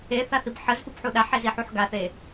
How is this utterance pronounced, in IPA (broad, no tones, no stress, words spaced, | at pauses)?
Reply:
eθaθib ħəzfupħu ɗaħeziħuħ ɡaθe